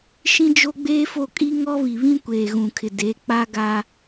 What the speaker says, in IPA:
ʃ ĩ˦ d͡ʒ o˦ ɡ͡b eː˦ f o˦˨ kʼ i˦ ŋ ɔ˦ β i˨ β ĩ˦ kʷ eː˨ ɣ ũ˨ kʰ ɪ˨ d e˨˦ k͡p a˦ ɡ a˦

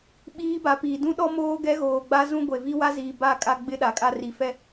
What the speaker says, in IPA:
ɓ iː˦ b a˨˦ p iː˨ d ũ˦ ɗ ɔ˦ m oː˦ ɡ ɛ˦ ɣ oː˨ ɡ͡b a˦ z ũ˦ ɡʷ e˨ v i˦ w a˦ z iː˨ b a˦˨ kʼ a˦ ɡ͡b ɪ˦ ɗ a˨ kʼ a˦ r i˨ f ɛ˦

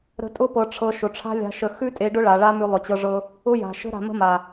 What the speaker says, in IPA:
ɾ ə̤˧ tʼ ʊ˦ p ɤ˧ ʈ͡ʂʰ ɤ˧ ʃ ʊ˨ ʈ͡ʂʰ a̤˦ lʲ a̤˧ ʃ ə˧ x ʉ˦ tʼ e˧ ɖ ʊ˦ ɭ a˨ ɭ a˦ m ʉ˧ lˠ ʊ˨ t͡ɕ ɤ˧ ʐ ɤ˧ | ʊ˦ j a̤˨ ʃ ə̤˦ ɾ a̤˧ m ə̤˦ m a˨

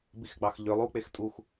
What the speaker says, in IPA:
b i x ɡ͡b ɑ x ʎ ø lˠ u k͡p e x tʼ u x

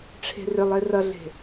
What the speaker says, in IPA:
ʈ͡ʂʰ e̤ r ʏ lˠ e r ʌ ɮ e̤

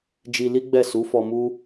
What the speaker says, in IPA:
d͡ʒ i˧ l i˦ ɡ͡b ɛ˦˨ s u˨˦ f ɔ˧ m u˦

